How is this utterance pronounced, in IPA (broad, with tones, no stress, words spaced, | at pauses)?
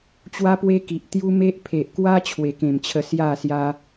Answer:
t͡ɕwa˦pwe˦ki˨ʔ t̪ju˦me˦ʔ pʰe˨ʔkwa˦ t͡ɕʰwe˨˩kẽ˨˩mt͡ɕʰə˧ sja˥˧sja˦